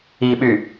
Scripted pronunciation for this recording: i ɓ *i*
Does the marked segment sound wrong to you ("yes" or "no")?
yes